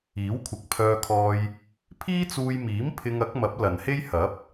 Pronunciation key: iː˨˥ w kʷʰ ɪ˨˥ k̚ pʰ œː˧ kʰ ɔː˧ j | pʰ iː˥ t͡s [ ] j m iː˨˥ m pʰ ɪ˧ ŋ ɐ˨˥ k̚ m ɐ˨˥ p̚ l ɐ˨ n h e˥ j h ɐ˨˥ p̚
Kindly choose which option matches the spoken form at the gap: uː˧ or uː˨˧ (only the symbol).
uː˧